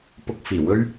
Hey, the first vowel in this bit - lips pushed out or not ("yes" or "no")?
yes